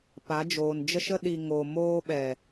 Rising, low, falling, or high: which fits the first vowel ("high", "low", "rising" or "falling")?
rising